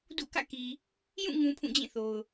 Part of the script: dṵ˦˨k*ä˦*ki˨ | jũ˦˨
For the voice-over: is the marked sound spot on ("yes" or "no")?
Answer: no